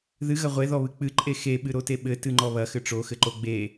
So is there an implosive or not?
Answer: yes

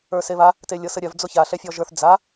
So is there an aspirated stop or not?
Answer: no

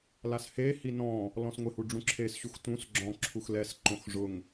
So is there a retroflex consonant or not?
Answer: yes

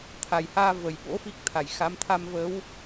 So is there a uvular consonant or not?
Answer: no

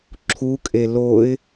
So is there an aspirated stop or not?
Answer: yes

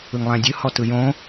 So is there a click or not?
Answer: no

